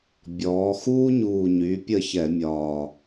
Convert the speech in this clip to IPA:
bʲɔː˩˧xuː˦ɲuː˨˩ ɲy˩˧ pʲə˦˨ çɛ˧˩˧mʲɒː˨˩

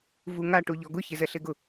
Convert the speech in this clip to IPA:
vuŋa ʈuʎɔɡʊ çezɛɬeɡʊ

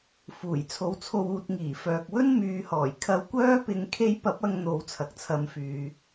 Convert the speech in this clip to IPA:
fuː˨˩jt͡sʰo˧wt͡sʰo˧w uː˨t̚ŋiː˨˩fœː˨k̚wɵ˥n myː˨˧hɔː˨˩j kʰɐ˧wkʷœː˥pɪ˧ŋ kʰe˧jpɐ˨˥p̚ ɐ˧ŋ n̪o˨˧wt͡sʰɐ˨k̚t͡sʰɐ˨˧m fyː˨

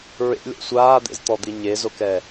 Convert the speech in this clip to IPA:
ɹḛlʲɔ̰ sʷaːd̪ḛzt̪ɔd̪i ɲezokɛ

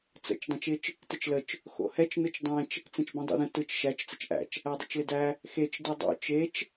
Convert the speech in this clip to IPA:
t͡sə̰t͡ʃ dˤẽt͡ʃɪt͡ʃ | tɪt͡ʃlət͡ʃ | xo̰hɛt͡ʃ nɯt͡ʃdˤɛ̃t͡ʃ | t͡sẽt͡ʃbẽdˤo̰ðə̃ tɯt͡ʃ ʃæt͡ʃ t͡sət͡ʃʔæ̰t͡ʃ | ædˤə̰t͡ʃlɪdæ | xet͡ʃ dɯdˤo̰ t͡ʃet͡ʃ

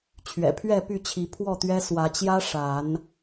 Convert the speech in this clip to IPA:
t͡ɕʰɥɛ̰˨˩pʰɥɛ˥˨py˥˨t͡ɕʰi˨˦ pʰwɔ˥˨t̪ɥɛ˦ swä˨˦t͡ɕjä˦ ʂa˨˦n

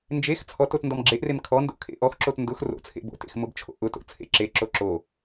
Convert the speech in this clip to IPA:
nd͡ʒex t͡sʰɔt otndɔmɡ͡ǁeʔrem kʰɔndo̰ kʰḛʔɔxǁot ndʊx ro̰t͡sʰḛ bo̰tḛx mʊbt͡ʃʰo̰ʔʊto̰ t͡sʰḛǁeǁo ǁo

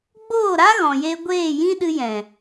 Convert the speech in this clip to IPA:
ɡ͡boː˦˨ɾa˦ ɣɔ̃˨je˧ ɡʷeː˦˨jĩ˦ɗɨ˧jɛ̃˨

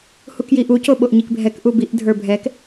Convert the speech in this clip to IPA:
hukjiʔu coɓoʔɲikbʱɛk ʔubiʔ dʱə˞bʱɛk

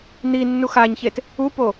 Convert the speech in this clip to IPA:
n̪inːu xaɲçet | upo

